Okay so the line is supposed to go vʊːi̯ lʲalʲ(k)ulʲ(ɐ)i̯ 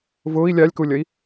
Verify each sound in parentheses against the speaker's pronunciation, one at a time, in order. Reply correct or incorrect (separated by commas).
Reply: correct, correct